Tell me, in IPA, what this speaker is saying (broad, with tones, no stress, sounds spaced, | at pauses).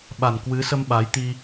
ɓ a˨˩ n k w ɨ˨˦ s ə˧ m ɓ a˨˦ j t̪ i˧